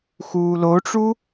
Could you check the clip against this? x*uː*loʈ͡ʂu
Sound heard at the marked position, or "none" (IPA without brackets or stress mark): uː